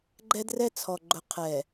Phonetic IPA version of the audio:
ɡ͡ǃ ɛ˦ d r ɛ˦ t͡sʰ ɔ˨ ɡ͡ǃ ʊ˨ qʰ ɛ˨

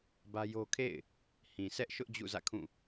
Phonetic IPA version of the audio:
b ä˦ j o˦ kʰ ḛ˦˨ ɪ̯ | h ĩ˨ sʰ ɛ˦ ʔ ʃ ʊ˦ ʔ d͡ʑ ṵ˦˨ z ä̰˦˨ kʰ ũ˦˨

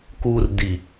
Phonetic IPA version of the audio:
k u r d i

